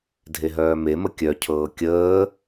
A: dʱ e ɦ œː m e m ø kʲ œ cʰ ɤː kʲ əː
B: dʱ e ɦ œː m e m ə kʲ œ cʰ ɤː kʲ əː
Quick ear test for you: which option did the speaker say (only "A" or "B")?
B